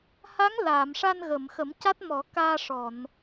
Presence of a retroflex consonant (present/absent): present